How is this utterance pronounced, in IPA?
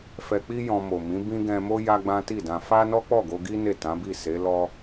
f ɛ˧ k͡p i˦ j ɔ̃˧ m o˨ m ĩ˨˦ b ĩ˦ ɡ ɛ̃˧ m o˦ j a˦ ɡ͡b ã˦ t i˦˨ d ã˧ f a˦ n ɔ˦ k͡p ɔ˦˨ ɡ o˧ ɡ i˦ n e˦˨ t ã˨˦ b i˦˨ s e˨˦ l ɔ˦

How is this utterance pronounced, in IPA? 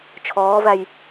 t͡ʃʰ ɔː v æ j

